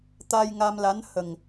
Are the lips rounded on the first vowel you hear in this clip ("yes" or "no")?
no